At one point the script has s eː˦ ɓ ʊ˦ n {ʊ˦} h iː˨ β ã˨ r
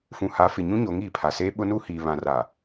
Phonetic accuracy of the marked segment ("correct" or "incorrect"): incorrect